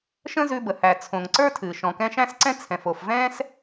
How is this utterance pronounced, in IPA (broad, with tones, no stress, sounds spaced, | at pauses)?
ʃ ə̃˥ z ʉ˧ b ə˩ h æ˩ t͡sʰ õ˩ ŋ ǀ ə˞˥ tʰ ɨː˩ ʃ ɔ̃˩ k ɛ̃˧ ʃ æ̃˥ s ǀ ɛ̃˥ t͡sʰ ɛ̃˩ f o˩ f v ɛ̃ː˥ s